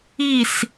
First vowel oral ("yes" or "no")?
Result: yes